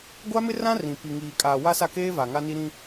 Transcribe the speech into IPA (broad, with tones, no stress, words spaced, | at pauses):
ɡʷa˦mɪ˦rã˦ rĩ˨ pi˨ŋiː˨ kʼaː˨wa˦sa˦˨keː˦ va˨ŋa˦ni˦ ɾĩ˦